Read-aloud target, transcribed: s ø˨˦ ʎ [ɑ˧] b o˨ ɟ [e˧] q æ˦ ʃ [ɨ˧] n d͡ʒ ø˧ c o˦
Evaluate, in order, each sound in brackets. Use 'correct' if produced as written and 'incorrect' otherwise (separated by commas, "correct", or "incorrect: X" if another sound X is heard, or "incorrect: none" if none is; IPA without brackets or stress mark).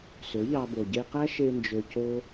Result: correct, correct, incorrect: e˧